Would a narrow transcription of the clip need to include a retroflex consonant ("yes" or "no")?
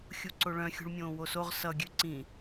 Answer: yes